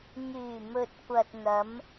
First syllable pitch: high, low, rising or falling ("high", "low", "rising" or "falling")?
low